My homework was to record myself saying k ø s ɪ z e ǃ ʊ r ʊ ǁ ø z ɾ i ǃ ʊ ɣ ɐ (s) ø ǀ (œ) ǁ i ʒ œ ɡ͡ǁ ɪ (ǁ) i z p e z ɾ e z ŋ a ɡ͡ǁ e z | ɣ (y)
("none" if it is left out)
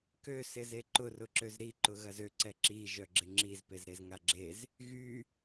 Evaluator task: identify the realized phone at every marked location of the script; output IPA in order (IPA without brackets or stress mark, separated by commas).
z, ɛ, ŋ͡ǁ, y